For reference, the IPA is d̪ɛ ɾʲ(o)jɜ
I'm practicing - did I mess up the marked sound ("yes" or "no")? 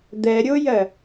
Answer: no